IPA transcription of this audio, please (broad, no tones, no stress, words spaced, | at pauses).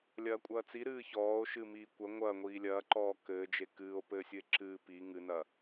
lʲɐːkʷʼɐːt͡si ɾɨːçɔːo̯ʃɨ miːkʷɐ ŋʷɐ ŋʷiːlʲɐːǃɔː kɘːd͡ʒe kɨːo̯ pɘːsʲɨe̯ǁɨː pi ŋɨnɐ